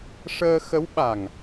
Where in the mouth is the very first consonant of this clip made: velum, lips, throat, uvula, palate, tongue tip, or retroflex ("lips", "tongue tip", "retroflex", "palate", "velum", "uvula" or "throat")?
retroflex